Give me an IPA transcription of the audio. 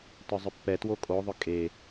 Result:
t œ zˤ ʏ pː ɛ t w o kʼ o ðˤ ʏ kʼ e

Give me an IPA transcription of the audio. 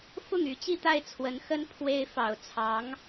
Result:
f ʊ˥˩ ŋ y˧˥ t͡ɕ i˥˧ t̪ a˥˩ ɪ̯ t͡sʰ w ə˧˥ n x ə˥ n pʰ w e˥ ɪ̯ f ɑ˨˩ ʊ̯ t͡sʰ ɑ˧˥ ŋ

